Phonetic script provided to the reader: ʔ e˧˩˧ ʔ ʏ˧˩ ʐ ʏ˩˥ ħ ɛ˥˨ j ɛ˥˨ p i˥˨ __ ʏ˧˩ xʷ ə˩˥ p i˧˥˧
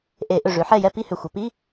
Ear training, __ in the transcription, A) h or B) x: A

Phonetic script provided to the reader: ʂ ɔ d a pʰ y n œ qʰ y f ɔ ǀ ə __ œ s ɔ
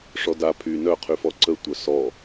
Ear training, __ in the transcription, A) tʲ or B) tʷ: B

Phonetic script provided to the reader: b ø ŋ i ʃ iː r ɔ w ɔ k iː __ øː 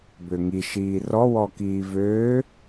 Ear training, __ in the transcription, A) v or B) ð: A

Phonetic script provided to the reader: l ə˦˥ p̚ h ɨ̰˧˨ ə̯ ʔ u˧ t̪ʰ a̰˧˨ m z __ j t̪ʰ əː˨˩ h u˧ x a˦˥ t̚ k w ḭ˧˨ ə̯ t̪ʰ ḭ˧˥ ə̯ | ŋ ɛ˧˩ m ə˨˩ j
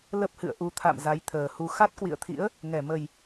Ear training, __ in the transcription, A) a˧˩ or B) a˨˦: B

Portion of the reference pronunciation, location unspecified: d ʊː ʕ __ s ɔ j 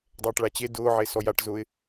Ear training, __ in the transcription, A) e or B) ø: A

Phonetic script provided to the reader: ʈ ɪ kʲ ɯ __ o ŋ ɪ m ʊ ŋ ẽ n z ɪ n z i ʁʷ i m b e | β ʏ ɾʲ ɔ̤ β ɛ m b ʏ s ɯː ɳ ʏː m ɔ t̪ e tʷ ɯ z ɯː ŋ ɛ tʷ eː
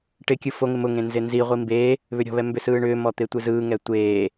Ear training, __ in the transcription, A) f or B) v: A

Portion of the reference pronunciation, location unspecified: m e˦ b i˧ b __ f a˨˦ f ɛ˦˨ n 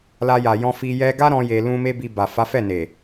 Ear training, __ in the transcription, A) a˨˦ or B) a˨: B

